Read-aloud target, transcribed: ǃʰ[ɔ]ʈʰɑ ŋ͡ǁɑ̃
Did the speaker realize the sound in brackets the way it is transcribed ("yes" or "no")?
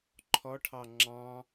yes